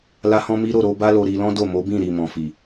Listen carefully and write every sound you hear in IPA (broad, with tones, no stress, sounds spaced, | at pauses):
l a˦ h ɔ̃˦ m i˦ ɾ o˦˨ ɾ o˧ b a˦ l o˧ ɾ i˧ l ɔ̃˦ d o˦˨ m o˨˦ b ĩ˦˨ ɾ i˨ m ɔ̃˨ f i˨